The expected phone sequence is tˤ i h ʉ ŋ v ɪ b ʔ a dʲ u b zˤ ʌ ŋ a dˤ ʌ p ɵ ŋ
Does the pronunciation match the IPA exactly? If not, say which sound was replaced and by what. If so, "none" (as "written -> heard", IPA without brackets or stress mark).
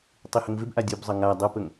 ʉ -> ə